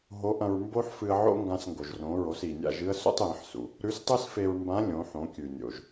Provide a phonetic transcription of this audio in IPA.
ɦ o˧˥ ʔ ɐ̃˧ ɹ m b o˥ ħ f ɨ˧ ə̯ ʕ o̰˥ ŋ ɡ ã˧ s ŋ ɡ o˩ ʒ r õ˩˧ ɹ o˩˧ s i˩ nʲ a̰˧ ʒ ɨ˧ ə̯ s ṵ˧ tˤ j ɐ̃˩˧ ħ s ṵ˩ | ɾ ʉ˧˥ s tˤ ɨ˥ s f e˧ ɹ m b ã˧˥ lʲ õ˩˧ ħ õ˩˧ kʲ ʉ˩ nʲ o̰˩ ʒ

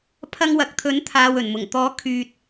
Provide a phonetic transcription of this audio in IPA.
pʰ ɐ˧ ŋ w ɐ˨ k̚ t̪ʰ ɵ˨˥ n t̪ʰ aː˨ w ɵ˨˩ n m ʊ˨˩ ŋ t̪ ɔː˨˥ kʰ yː˨ t̚

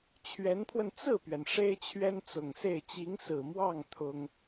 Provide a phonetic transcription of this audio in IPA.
t͡ɕʰ ɥ ɛ˧˥ n pʰ w ə˧ n t͡s ɹ̩˥˩ p ɥ ɛ˩ n ʂ e˥ ɪ̯ t͡ɕʰ ɥ ɛ˥ n t͡s ʊ˨˩ ŋ s e˥˩ ɪ̯ t͡ɕ i˧˥ ŋ s ɹ̩˨˩ m w ɑ˥˩ ŋ t̪ʰ ʊ˥ ŋ

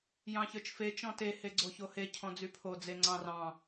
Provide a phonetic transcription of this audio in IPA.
j ɑ̃ ç ə˞ t͡ʃ f e t͡ʃ ɔ̃ t e h e ɡ͡ǀ o ç o h e cʰ ɔ̃ d͡z y pʰ o d͡z e ŋ͡ǀ ɑ̃ r ɑ̃

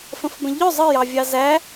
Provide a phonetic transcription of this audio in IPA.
f ə̃ f b ə̃ ʎ œ zˤ ə j ɑ vʲ ɑ z æ

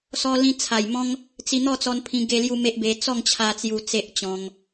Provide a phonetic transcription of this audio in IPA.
s ɔ˧ l ĩ˧ t͡sʰ a˨˩ j m ɔ̃˦ ŋ | t͡s i˧ n̪ ɔ˥˧ t͡s ɔ˧ n pʰ ĩ˧ ɡ e˧ l j u˦ m e˦ ʔ b e˧ t͡s ɔ˥˧ ŋ t͡ɕʰ a˧ t͡s j u˧ t͡s e˦ ʔ t͡ɕ ɔ̃˧ ŋ

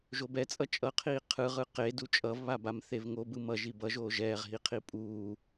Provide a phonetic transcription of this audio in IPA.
ʒ o b ɛ t͡sʼ ʌ t͡ʃʼ ʌ qʰ iː qʰ ɯ ʁ ɯ q e d u t͡ʃʼ ʌ v β a b a m θ e v ŋ o b ɯ m ʌ ʒ i b ʌ ʒ oː ʒ ɛː ʁ ɦ i qʰ i pʼ uː

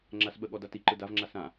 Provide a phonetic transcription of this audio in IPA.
ŋ͡ǁ a s ɓ ə ɠ ɔ d a t i ǃ ɯ d a v ŋ͡ǁ a s ã

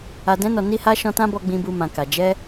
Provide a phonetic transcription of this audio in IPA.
a˨ d ɛ̃˧ n ɔ˨ n i˧ h a˧ ʃ ɔ̃˧ t ã˦ b ɔ˧ ɡ͡b ĩ˧ b u˧ m ã˨ k a˨ d͡ʒ ɛ˧

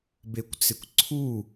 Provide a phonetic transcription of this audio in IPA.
b e kʷ t͡s ɪ kʷ ǀʰ u

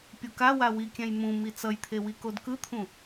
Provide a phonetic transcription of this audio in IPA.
pʲ u k a w a w i kʲ ɛ̃ j m ũ m i t͡s ʌ j t̪ʰ e w i k o d k ɯ t̪ʰ ũ

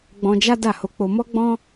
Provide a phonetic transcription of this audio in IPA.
ɡ͡b ɔ̃˧ d͡ʒ a˦ d a˦˨ h o˧ k͡p o˧ m ɔ˦ ɡ͡b ɔ̃˦

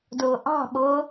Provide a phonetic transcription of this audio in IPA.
d ʊː ʔ ɑ̤ ɓ ʊː

